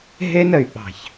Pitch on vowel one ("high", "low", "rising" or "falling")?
high